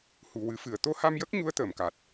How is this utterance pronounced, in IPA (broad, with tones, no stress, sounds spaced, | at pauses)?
h u˨˩ w ɨ˨˩˦ f ɨ˨˩˨ ə̯ t̪ o˧˥ h a˧ m j ə˦˥ k̚ ɲ u˧˥ ə̯ t̪ əː˨˩˨ m k a˨˩ t̚